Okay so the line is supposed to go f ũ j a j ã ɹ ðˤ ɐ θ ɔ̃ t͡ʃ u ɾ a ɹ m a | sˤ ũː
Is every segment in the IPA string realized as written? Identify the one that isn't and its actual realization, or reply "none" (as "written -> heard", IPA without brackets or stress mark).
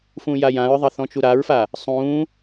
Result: m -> f